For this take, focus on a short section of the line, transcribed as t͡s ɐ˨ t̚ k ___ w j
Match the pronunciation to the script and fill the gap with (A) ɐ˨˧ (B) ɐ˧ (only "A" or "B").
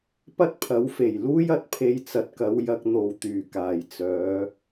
A